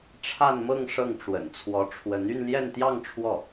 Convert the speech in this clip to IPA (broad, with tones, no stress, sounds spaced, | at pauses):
ʈ͡ʂʰ a˥˧ n m ɤ˥˧ ŋ ʂ ɤ˥˩ ŋ ʈ͡ʂ w ə̰˨˩ n t͡sʰ w ɔ˧˥ ʈ͡ʂʰ w ə˧˥ n y˥˧ n l j ɛ˥˧ n t̪ j ɑ˥˧ ŋ ʈ͡ʂʰ w ɔ˥˩